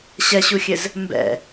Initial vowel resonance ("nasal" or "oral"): oral